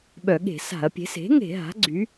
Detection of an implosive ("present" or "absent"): present